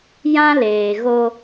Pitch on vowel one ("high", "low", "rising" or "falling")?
high